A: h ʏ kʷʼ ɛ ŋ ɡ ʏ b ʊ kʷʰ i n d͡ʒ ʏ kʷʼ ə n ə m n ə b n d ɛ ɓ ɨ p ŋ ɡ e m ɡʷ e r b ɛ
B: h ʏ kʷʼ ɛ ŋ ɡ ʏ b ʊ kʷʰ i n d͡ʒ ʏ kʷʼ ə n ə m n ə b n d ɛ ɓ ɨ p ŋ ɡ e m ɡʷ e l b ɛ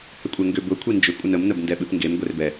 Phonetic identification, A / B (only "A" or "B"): A